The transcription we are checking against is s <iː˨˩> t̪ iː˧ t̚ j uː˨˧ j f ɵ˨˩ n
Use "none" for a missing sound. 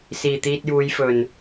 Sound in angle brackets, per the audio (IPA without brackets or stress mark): iː˨˩